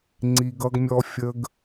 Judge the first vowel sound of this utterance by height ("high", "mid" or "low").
high